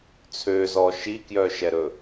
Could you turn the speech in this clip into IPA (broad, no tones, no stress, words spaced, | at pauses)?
t͡sʰøzɔ ʃikjœʃɛɾɵ